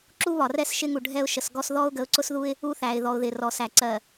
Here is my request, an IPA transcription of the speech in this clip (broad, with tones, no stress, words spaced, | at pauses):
ǁu˦βɒ˨rɛ˦s ʃɪ˦ŋu˨ ɖʱɛ˦ʊ̯ ʃə˨sɡɔ˦s ðɔ˦ʊ̯ɡə˨˦ʊ̯ǀʊ˦sðu˦ɪ̯ | u˦θæ˨ɪ̯ðɔ˨ʊ̯ðɪ˨ rɔ˨sæ˨ ǀɜ˨